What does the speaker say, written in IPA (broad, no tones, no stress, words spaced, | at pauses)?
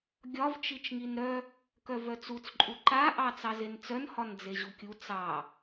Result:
ɡʲɒvt͡ʃit͡ʃŋin ɾœ | kœvœt͡sut͡sǃʼu ǃaʔɑ t͡sɑzent͡sœnhɒn d͡zeʑukʲu t͡sɑ